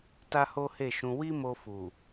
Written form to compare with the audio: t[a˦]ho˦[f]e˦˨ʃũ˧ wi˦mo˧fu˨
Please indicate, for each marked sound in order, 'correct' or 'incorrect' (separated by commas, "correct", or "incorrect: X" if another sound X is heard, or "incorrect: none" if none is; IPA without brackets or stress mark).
correct, incorrect: h